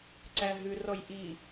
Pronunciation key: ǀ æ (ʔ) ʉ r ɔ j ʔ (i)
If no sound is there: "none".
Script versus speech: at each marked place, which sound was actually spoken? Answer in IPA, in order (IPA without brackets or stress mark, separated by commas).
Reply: ɦ, i